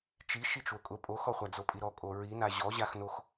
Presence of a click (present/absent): absent